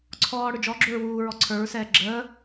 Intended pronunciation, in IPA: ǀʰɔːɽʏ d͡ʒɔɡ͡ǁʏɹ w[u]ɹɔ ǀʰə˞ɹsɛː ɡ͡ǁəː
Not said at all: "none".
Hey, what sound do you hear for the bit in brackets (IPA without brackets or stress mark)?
uː